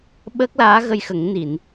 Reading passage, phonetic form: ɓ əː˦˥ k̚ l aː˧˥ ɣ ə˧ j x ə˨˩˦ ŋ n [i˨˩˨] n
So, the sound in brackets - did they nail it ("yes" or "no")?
yes